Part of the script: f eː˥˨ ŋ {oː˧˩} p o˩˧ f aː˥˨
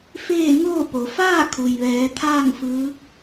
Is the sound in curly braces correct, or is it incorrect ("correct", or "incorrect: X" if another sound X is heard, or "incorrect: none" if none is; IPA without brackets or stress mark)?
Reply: incorrect: oː˥˨